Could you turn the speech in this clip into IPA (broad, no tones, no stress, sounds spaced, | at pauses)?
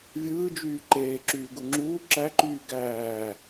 vʲ ɯː d͡ʒ yː ǃ eː ǁ yː ɡ u ŋ͡ǁ uː ǁ æ ǃ yː ɡ æː